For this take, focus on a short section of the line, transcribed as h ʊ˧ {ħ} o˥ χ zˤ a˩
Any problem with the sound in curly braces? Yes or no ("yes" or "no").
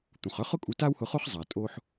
yes